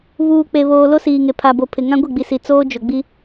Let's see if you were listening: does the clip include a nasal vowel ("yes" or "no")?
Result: yes